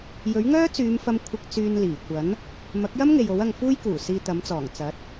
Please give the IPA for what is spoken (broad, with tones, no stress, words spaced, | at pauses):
jɵ˨˥ɥŋœː˥t͡syː˨˧mfɐ˧m kʷʰɪ˧k̚ t͡syː˧nliː˨˩kʷɐ˨˥n | mɐ˨˥k̚jɐ˥mŋe˨j o˨˥wɐ˧ŋfuː˥jkuː˨˩ siː˧t̪ɐ˨˥mt͡sɔː˨˩ŋ t͡sɐ˨˥t̚